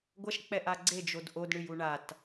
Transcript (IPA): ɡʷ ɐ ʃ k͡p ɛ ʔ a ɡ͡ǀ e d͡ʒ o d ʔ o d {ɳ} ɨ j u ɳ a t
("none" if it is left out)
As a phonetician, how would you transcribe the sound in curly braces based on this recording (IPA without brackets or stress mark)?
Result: ɳ